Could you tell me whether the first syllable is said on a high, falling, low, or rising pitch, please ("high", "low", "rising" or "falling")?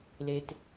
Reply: high